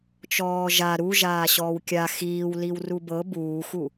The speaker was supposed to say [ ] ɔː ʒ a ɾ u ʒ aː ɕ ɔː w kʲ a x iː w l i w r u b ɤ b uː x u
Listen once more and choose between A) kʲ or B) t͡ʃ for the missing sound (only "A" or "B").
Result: B